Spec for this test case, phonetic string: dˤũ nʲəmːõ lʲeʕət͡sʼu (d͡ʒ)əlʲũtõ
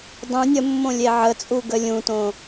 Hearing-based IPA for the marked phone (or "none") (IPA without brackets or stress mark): ɡ